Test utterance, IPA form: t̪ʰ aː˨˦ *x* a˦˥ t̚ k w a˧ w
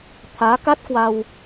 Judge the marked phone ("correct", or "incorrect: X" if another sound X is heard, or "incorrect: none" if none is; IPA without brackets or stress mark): incorrect: k